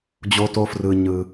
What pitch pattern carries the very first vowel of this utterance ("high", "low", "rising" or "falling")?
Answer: high